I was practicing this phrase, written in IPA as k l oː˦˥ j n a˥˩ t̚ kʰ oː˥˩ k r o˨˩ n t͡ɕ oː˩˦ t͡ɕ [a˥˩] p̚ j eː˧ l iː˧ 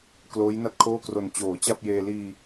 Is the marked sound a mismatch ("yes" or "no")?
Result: no